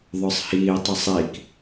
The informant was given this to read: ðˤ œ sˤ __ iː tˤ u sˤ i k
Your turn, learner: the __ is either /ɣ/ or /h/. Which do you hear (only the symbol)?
h